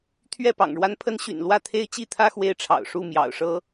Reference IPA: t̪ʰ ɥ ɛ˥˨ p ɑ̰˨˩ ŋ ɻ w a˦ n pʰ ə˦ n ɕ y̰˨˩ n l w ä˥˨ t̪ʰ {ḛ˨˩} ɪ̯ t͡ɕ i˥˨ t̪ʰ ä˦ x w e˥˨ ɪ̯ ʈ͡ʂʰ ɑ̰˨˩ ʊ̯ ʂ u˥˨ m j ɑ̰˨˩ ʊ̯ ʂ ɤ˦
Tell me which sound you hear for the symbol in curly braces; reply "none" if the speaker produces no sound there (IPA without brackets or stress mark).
e˦